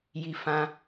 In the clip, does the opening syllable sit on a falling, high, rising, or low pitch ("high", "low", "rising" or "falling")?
low